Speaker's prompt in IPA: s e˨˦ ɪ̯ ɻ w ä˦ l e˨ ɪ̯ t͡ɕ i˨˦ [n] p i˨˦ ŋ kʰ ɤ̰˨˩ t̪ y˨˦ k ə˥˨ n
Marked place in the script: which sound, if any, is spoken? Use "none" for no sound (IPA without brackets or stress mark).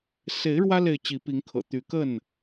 none